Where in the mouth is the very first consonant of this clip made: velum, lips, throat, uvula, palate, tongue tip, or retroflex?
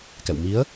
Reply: velum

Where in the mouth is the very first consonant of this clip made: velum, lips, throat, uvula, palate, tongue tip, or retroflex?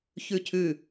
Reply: palate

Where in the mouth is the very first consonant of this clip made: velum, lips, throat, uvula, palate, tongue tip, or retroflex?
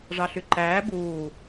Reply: retroflex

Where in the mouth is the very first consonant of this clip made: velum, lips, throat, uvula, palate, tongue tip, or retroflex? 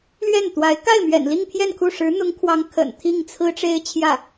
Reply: tongue tip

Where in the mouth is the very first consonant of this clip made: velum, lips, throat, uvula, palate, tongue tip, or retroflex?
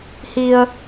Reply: throat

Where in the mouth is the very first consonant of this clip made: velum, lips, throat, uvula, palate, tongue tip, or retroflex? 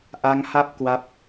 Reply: throat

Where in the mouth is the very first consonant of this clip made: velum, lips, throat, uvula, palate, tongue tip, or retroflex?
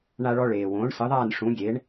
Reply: retroflex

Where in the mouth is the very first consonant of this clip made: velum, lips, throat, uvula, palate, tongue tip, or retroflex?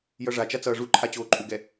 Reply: palate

